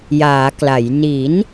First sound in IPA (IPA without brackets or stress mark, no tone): j